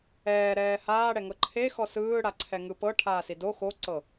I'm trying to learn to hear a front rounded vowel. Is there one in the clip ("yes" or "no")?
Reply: no